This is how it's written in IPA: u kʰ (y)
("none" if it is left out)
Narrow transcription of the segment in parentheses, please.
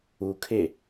e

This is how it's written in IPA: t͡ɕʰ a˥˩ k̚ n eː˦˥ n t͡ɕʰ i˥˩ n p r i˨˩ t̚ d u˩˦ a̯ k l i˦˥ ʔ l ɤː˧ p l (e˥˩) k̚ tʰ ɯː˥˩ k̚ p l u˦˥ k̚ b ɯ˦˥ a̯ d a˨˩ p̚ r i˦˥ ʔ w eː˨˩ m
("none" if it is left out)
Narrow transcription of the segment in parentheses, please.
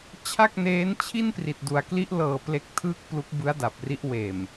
e˦˥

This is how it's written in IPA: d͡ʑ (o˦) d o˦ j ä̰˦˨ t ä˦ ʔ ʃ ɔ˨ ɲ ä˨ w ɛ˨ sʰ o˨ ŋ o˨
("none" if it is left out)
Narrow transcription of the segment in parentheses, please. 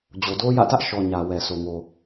o˨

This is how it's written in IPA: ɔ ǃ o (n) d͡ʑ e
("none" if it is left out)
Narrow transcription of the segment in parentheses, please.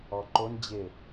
n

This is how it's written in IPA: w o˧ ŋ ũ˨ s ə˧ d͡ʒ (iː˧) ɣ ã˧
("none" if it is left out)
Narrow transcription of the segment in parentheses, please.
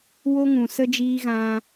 iː˧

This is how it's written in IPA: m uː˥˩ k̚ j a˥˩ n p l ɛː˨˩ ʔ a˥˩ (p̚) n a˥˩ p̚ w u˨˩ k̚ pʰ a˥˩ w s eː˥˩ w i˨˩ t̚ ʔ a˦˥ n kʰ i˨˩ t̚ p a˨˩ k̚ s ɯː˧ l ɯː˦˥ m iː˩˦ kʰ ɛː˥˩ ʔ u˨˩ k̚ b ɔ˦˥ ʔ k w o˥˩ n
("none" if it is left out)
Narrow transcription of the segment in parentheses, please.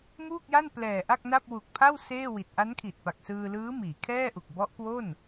k̚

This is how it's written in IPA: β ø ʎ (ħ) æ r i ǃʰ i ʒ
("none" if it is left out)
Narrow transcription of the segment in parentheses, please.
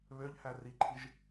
h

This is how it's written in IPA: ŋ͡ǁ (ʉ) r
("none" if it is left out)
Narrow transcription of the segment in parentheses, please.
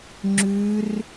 ʉ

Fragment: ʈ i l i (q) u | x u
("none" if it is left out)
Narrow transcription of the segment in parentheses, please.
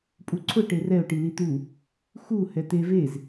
t̪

